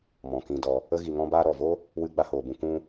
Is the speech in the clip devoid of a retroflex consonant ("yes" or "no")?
yes